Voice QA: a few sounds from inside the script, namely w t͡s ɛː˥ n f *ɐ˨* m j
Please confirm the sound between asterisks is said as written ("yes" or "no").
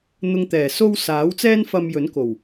no